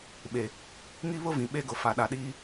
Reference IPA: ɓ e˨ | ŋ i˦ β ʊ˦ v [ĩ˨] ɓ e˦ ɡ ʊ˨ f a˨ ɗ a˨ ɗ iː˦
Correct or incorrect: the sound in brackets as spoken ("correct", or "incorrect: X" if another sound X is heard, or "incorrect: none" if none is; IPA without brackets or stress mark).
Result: correct